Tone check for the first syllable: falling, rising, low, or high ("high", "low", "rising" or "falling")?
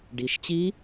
rising